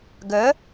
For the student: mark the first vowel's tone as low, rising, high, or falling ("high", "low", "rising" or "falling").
rising